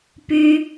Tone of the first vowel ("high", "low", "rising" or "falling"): high